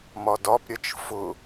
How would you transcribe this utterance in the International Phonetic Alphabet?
m ɒ d ɒ p ɾʲ ɐ t͡ʃ f ʊ

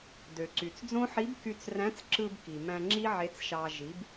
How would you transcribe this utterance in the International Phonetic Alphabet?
d ø˩ ǀ y˩ t͡s d͡z õ˥ ħ i˧˥ b k y˧ t͡s r æ̃˧˥ t͡s ǁ ɯ˧ b k i˩ m æ̃˧ ŋ͡ǁ i˥ ʕ e˧˥ t͡s ʃ ɑ˧ ʒ i˩˧ b

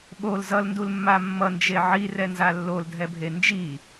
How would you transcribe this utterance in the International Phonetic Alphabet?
ɓ o l z ʌ l n d u l mː a mː ʌ n d͡ʒ e ʕ i r ɛ n z a lː o l dʱ ɛ bʱ e n d͡ʒ i

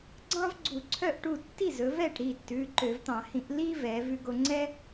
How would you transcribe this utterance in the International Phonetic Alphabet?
ɡ͡ǀ ɑ̃˥ v ɡ͡ǀ u˧˩˧ ǀʰ œ˥˩ ʔ ʈ u˥˩ tː i˥˩ z ɵ˩˧ v ɛ˥˩ ʈ ɾ i˥˩ tː ʉ˩˧˩ ǃ ø˧˩˧ v t̪ ɑ̃˧˩˧ h ĩ˧˩˧ ʔ l i˥ v ɛ˩˧ v ʉ˧ ɡ o˧ ŋ͡ǀ ɛ˥

